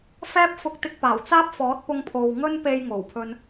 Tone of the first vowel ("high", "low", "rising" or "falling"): high